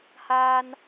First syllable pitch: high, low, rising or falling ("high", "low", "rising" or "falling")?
high